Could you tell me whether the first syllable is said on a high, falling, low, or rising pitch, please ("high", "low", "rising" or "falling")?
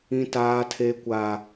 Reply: high